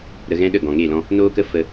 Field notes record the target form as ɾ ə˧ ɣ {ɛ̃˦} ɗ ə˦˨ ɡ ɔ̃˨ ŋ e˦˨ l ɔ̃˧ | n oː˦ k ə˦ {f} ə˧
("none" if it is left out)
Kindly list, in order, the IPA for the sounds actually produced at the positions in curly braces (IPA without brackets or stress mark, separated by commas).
ɛ̃˦, f